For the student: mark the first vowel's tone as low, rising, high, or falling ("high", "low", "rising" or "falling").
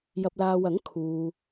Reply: low